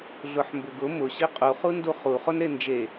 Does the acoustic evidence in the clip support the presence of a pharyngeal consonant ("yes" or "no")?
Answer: yes